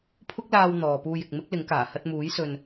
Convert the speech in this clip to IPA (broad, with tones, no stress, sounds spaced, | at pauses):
pʰ ʊ˥ k̚ l aː˧ w n̪ ɔː˨ p uː˧ j ɪ˨ k̚ m ɪ˥ k̚ l ɪ˨˥ ŋ k aː˨˩ h ɐ˧ t̚ m uː˨˥ j s ɵ˨ n